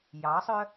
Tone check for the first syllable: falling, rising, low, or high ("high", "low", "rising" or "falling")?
rising